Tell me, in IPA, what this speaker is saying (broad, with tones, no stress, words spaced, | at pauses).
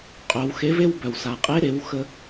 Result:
qʼœ˩˧w xe˧˥ve˥wbœ˩w sa˩qʼe˧˥ɾe˩˧w xə˧